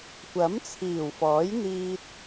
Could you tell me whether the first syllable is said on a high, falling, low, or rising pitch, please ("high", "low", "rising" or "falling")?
rising